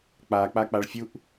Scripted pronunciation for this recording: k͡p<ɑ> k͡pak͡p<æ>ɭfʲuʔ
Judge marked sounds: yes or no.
no, no

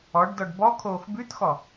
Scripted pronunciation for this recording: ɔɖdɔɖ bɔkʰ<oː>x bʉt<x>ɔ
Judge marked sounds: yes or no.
yes, yes

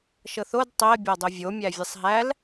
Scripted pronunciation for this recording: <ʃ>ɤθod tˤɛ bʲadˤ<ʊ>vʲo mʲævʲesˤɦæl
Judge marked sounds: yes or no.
yes, yes

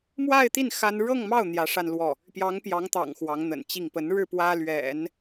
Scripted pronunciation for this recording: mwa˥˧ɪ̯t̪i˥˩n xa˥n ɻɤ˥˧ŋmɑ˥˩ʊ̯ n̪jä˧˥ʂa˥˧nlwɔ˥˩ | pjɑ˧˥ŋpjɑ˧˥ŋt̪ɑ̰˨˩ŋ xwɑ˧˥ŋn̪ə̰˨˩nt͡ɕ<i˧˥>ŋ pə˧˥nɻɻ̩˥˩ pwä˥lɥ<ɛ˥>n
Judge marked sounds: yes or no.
no, no

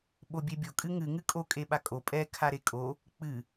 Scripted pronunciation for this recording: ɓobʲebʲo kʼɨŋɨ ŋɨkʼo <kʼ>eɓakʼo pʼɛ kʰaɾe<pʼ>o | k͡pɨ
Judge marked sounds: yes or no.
yes, no

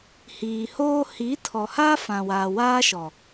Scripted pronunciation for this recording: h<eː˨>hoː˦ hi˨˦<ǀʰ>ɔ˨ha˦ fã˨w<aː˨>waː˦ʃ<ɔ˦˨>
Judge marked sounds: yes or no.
no, no, yes, no

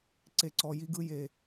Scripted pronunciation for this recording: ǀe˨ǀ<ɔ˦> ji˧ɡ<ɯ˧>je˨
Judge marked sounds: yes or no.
no, yes

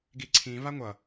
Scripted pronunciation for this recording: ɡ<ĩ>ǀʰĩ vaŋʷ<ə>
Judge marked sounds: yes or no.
no, no

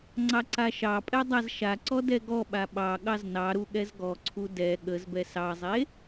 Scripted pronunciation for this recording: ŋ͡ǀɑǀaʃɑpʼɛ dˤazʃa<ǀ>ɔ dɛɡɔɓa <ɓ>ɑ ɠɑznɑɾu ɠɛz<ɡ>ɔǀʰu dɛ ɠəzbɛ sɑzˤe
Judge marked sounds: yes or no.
yes, yes, yes

